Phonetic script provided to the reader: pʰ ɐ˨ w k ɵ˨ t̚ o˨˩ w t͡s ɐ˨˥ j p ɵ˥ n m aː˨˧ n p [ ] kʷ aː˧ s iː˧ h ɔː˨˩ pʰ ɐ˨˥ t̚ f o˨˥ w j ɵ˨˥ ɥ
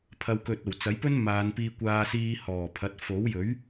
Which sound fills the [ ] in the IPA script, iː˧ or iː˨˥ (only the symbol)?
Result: iː˧